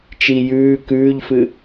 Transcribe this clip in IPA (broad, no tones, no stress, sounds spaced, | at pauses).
t͡ʃ i j ʉː k ʉː ʎ f ɨ